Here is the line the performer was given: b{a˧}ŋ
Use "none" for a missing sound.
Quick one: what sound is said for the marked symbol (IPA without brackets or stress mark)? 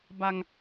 a˧